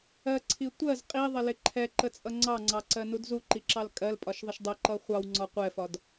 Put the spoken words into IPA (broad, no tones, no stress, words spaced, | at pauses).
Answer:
ɜǀʰi tʷɜz qʼiðˤɪlɪ ǃʰɛǃət͡sʼʌ ŋ͡ǀɑŋ͡ǀɑǀɜnud zuǃiǁɑl kʼɜlpʼɒʃðˤəʃ dˤəǃʌ χʷɑwŋ͡ǀɒ qʷɛfɒd